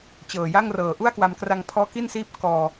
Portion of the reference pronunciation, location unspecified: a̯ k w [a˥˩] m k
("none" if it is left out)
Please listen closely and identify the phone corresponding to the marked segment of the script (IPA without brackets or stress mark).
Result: a˧